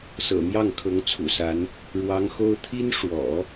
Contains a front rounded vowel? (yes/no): no